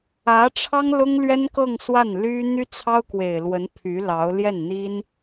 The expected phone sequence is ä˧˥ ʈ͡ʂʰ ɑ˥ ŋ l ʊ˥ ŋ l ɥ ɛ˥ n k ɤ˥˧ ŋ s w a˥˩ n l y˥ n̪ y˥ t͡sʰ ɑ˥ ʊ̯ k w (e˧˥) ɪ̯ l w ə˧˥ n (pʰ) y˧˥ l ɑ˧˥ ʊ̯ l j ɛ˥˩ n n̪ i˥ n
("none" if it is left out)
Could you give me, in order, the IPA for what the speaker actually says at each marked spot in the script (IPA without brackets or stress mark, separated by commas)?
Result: e˨˩, pʰ